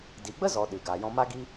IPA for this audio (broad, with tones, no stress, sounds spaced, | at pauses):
d i˨ ɡ͡b ə˦ z ɔ˨ ɗ ɨ˨ ɡ aː˨ j ɔ̃˧ m a˦ ɡ i˦